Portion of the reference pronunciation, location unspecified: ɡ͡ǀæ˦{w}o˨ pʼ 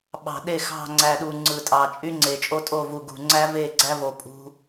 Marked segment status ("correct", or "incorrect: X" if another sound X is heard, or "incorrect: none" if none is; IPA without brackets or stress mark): incorrect: v